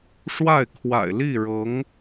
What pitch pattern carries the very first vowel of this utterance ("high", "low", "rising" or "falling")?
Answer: falling